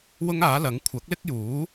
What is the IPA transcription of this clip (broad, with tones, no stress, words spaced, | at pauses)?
wʊ˥ŋaː˨˥lɐ˨˥ŋ kʷʰɐ˨˥k̚lɪ˥k̚juː˨˥